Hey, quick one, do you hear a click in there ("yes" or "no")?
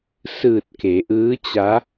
no